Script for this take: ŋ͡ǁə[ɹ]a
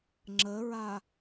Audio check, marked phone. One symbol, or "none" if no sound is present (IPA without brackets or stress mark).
ɹ